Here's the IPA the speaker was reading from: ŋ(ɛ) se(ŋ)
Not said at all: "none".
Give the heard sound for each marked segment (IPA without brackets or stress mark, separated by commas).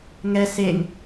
ɛ, ŋ